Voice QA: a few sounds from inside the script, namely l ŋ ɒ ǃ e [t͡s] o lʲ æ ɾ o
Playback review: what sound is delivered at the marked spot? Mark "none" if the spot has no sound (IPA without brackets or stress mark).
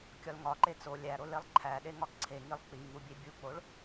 t͡s